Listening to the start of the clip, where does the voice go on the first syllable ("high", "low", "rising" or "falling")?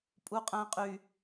high